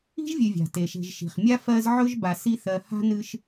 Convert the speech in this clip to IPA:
i̤˥ʒvʲɨ˨vʲa̤˩ te˩ʃe̤˨ʒʃi̤˩χ mʲa˥fɜ˦z ʕɵ˥ʒba˨si˦θɜ˨ ha̤˥nɨ˦ʃ

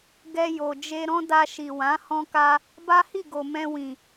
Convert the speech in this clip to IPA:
ɡɛ˧ jo˨ d͡ʒe˧ ɾɔ̃˦da˧ʃi˨wã˨˦ hɔ̃˧ka˧ | ba˦hi˦˨ɡo˨ mɛ̃˧wĩ˨

